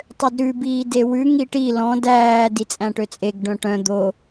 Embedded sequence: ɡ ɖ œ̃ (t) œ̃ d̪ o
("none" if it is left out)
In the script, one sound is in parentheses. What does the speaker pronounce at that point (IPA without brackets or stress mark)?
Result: ʈ